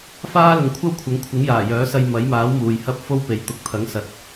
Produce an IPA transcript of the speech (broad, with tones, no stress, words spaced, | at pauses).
faː˥lʊ˨ŋkʷʰɐ˥wkʷʰɐ˨˥ŋ kʷʰɪ˨˥ŋjaː˨˩ jœː˨˥sɐ˧j mɐ˨˥jmaː˨˥w muː˨jhɐ˥p̚ fo˥wpe˨˥j t̪ʊ˨˥k̚t̪ʰɐ˨˥ŋsɐ˨t̚